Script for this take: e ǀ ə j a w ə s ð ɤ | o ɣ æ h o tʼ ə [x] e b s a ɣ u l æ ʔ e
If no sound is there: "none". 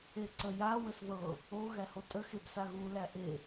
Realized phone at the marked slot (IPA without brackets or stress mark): x